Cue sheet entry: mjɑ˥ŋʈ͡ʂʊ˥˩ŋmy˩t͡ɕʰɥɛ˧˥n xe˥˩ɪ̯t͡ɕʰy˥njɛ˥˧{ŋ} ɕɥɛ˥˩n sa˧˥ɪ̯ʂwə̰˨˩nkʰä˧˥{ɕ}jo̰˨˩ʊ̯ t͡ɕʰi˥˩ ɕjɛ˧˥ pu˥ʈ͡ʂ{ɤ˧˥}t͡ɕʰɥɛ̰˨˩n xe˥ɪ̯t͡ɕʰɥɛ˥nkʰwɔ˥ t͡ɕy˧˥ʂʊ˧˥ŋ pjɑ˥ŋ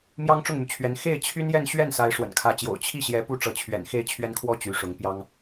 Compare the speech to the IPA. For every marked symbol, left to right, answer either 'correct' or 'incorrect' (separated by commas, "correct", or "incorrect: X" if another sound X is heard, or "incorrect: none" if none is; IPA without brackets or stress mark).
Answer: incorrect: n, incorrect: t͡ɕ, correct